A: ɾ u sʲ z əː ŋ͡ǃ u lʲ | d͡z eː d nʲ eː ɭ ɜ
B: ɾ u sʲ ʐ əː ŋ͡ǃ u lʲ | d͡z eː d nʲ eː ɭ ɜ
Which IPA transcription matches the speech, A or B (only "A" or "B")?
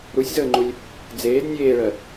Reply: A